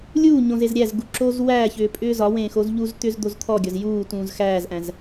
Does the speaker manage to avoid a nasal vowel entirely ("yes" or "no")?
no